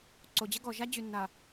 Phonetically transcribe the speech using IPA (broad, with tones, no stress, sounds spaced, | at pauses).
ǀ o˨ d͡ʑ ə˦ ɡ ɔ˨ ʒ a˦ d͡ʑ y˨ nː a˨